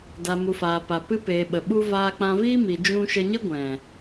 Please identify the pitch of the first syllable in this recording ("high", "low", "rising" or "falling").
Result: low